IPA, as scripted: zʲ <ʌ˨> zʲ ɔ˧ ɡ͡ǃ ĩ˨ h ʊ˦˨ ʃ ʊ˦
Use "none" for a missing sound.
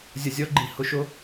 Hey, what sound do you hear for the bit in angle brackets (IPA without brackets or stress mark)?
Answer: ʌ˨